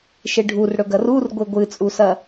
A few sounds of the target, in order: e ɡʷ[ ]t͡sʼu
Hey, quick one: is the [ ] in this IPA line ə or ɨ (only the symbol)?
ɨ